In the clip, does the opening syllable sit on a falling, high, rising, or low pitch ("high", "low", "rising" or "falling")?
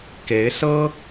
rising